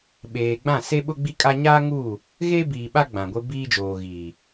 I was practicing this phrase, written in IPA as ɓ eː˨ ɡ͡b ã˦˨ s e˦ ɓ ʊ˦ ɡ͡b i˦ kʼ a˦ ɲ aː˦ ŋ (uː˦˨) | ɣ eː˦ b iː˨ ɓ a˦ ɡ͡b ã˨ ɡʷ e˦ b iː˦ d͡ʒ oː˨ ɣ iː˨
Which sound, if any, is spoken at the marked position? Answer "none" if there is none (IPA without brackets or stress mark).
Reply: uː˦˨